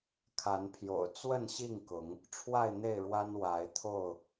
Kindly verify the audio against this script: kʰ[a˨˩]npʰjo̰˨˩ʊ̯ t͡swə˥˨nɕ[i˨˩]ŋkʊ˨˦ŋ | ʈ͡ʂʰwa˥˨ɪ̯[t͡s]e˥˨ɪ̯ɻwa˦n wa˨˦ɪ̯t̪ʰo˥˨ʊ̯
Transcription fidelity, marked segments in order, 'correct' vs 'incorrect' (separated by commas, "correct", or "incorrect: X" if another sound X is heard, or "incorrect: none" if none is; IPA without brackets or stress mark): incorrect: a˨˦, incorrect: i˥˨, incorrect: n̪